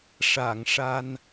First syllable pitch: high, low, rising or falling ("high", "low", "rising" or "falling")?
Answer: low